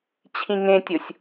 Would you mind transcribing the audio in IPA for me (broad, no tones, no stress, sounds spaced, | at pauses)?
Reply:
t͡ɕʰ ĩ ŋ ẽ tʲ o sʲ